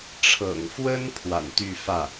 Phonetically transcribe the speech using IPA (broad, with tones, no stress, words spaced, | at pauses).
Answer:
ʈ͡ʂʰɤ̰˨˩ŋfwə˥n pʰwa̰˨˩nt̪y˥˧fä˥˩